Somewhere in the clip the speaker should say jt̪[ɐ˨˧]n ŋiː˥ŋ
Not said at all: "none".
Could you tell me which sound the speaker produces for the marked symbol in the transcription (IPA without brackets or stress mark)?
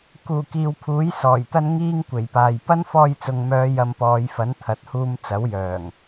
ɐ˥